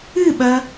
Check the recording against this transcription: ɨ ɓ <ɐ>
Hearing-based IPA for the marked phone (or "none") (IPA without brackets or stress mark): ɐ